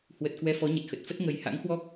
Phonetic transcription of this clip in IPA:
h w ə˨˩ t̚ k w ɛ˧ f ɔ˨˦ ɲ ə˨˩ t̚ x ə˨˩ t̚ f ə˦˥ t̚ ŋ ə˨˩ j h a̰˧˥ ŋ h w ɔ˦˥ k̚

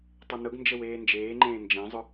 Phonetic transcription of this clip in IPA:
tˤ ə n ʊ ɡ n d͡ʒ ə w eː n d͡ʒ eː ŋ͡ǃ ẽː n d͡ʒ ẽ zˤ ʊ

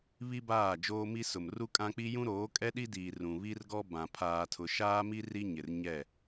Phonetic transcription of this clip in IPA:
β i˦ b aː˦˨ d͡ʒ oː˦ m i˦ s ʊ˨ m r u˦ kʼ ã˦ k͡p i˦ j ũ˦ ɾ oː˨˦ kʼ ɛ˦ ɗ i˦ d iː˨ r ũ˨ β i˦ r ɡ ɔ˦ b ã˨ pʰ aː˨ tʰ ʊ˨ ʃ aː˦ m i˦ r i˦ ɲ ɪ˨ r ɲ ɛ˦˨

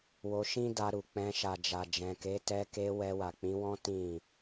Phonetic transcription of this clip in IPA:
w o˧ ʃ ĩ˦ d a˧ ɾ u˨ k͡p ɛ̃˧ ʃ a˨ d͡ʒ a˨ d͡ʒ ɛ̃˨ k e˨˦ t ɛ˧ k e˧ w ɛ˧ w a˨ k͡p ĩ˨˦ w ɔ̃˦ t ĩ˦˨

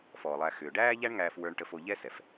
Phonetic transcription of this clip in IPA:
f ɔː˨ lˠ æ˧ x ʏː˨ ɖ æː˦ ʎ æ˦ ɳ ŋ æː˧ f w ə˞˧ ɳ ʈ ə˧ f o˧ ʎ ɛ˦ s ɛ˨ f

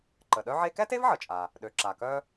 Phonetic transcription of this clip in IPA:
ǃ ə˩ ɗ œ˥ ʕ e˥ k ɛ˥ t e˥ v ʕ ə˩ t͡ʃʼ a˩ | ɗ ø˩ ǁ a˩ k œ˥

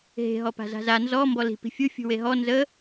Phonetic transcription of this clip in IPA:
ɦ e̤ ɦ ɔ p a̤ z a̤ z a n z ɔ m b ɔ l i̤ p i̤ fʲ u fʲ ṳ w e ɦ ɔ n z ə

